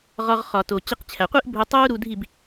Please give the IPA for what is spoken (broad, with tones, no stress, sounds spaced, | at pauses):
ʁ ɒ˧ ʁ χ ɒ˨ t o˨ t͡ɕ i˧ q t͡ɕʰ æ˨ qʷ i˦ ʔ bʱ u˧ tˤ uː˦ ɾ u˧ dʱ i˦˨ b